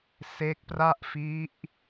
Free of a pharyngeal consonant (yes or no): yes